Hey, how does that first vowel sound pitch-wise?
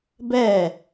falling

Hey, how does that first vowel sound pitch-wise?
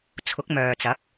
rising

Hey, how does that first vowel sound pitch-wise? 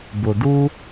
low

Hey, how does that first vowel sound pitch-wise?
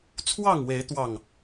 falling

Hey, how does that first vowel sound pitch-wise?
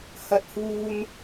high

